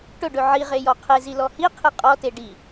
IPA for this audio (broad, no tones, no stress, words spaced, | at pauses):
ʈɵɖɵ ʕiʁe jɔqʰezi lɔhiqʰi qʼɔte ɖi